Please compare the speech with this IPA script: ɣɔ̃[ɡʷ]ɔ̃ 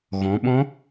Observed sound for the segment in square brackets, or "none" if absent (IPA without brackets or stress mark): ɓ